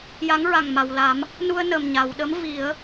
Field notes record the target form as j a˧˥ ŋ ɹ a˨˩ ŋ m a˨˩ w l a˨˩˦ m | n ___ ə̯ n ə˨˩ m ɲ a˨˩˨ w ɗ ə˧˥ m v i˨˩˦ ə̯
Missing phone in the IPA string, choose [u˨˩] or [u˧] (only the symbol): u˧